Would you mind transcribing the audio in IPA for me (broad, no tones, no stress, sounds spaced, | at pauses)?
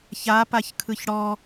ç a p a ç kʰ ɯ ç ɽ ɔ